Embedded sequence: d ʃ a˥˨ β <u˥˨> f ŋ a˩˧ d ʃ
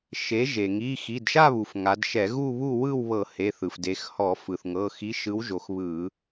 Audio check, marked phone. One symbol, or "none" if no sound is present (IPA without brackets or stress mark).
u˩